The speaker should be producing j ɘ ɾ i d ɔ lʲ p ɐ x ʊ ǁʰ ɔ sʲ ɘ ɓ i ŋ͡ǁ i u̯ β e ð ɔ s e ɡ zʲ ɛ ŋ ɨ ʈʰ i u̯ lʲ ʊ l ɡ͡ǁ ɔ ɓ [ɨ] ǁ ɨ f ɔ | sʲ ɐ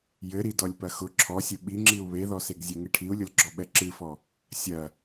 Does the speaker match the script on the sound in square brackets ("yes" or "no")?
no